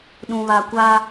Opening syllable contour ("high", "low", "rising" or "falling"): low